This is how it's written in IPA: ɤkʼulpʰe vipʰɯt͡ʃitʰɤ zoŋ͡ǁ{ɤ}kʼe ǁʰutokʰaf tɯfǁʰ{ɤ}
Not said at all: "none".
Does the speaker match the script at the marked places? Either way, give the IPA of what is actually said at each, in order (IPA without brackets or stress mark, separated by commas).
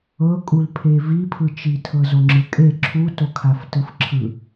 ɯ, ɯ